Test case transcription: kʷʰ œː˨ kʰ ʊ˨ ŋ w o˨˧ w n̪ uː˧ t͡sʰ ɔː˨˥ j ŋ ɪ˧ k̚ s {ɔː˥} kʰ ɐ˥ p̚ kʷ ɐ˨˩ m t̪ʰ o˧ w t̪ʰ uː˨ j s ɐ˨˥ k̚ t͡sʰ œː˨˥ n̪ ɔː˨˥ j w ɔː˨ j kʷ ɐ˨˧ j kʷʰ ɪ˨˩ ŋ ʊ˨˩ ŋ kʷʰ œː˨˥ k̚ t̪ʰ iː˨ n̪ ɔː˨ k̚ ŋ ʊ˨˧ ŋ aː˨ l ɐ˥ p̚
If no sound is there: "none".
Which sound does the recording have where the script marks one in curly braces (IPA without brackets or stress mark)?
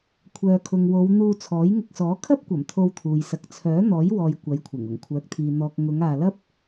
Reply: ɔː˨˥